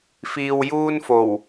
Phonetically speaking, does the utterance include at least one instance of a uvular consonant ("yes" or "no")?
no